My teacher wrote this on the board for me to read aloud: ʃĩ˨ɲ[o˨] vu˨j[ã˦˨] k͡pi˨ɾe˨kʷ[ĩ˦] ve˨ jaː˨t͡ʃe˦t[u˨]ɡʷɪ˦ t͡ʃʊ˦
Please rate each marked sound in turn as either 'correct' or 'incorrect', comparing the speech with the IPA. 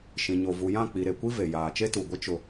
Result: correct, correct, incorrect: i˦, correct

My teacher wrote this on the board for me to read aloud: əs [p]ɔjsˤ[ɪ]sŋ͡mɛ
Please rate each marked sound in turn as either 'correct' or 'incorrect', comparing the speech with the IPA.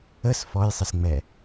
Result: incorrect: f, correct

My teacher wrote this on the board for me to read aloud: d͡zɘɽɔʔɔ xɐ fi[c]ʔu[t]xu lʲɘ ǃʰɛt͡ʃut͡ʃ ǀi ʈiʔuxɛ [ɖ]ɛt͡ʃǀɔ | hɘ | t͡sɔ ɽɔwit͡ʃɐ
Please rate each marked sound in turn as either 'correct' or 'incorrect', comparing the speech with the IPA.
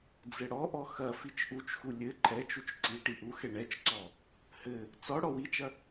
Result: incorrect: t͡ʃ, incorrect: t͡ʃ, incorrect: ɳ

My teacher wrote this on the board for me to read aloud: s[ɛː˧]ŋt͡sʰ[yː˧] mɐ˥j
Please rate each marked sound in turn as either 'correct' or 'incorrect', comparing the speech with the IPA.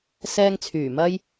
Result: correct, incorrect: yː˨˩

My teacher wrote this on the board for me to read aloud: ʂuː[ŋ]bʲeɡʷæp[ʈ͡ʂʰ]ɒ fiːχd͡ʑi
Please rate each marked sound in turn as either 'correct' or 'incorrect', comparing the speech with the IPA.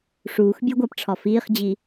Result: incorrect: x, correct

